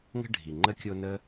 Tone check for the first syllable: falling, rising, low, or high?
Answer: high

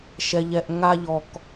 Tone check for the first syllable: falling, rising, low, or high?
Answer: low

